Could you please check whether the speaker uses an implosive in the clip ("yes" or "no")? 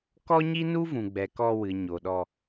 yes